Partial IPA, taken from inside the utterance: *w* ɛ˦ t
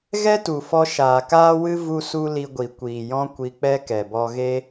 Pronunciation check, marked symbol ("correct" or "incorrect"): incorrect